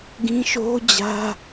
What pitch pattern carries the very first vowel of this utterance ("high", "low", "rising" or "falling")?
high